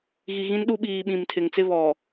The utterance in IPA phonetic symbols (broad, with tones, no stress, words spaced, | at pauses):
ɣi˨ ɣĩ˦nɗu˦ ɓiː˨ ɓĩ˨mtʰɪ˨ŋ t͡sɪ˦βɔ˨